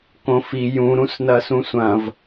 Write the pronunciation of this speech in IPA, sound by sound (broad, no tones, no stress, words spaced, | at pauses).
kõfi jũ ɾũsnɐsũsʷɐ̃v